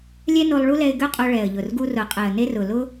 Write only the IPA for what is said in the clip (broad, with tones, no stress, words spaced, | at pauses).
lʲɛ˦no˧lˠ ɭu˦lɛ˧ɪ̯ɡø˦qʼo˧ ɭɛ˨ə̯ʎʊ˨rɡu˧rʊ˨ qʼɛ˨ə̯ne˧rʊ˨ lʊ˦